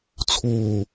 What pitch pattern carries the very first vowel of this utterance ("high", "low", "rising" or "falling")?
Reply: low